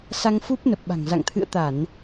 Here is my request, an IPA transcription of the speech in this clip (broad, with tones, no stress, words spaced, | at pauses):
sa˧ŋfu˦˥p̚ nə˨˩p̚ɓa̤˨˩ŋ za̰˧˨ŋt̪ʰɨ̰˧˨ə̯t̪a˧˩˨n